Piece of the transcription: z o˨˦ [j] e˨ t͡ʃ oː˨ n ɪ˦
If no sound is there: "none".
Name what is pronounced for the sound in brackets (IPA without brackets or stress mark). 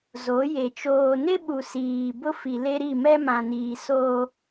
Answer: j